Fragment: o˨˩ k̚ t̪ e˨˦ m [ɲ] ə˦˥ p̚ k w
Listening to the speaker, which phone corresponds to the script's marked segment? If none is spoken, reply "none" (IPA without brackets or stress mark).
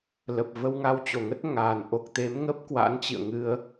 ŋ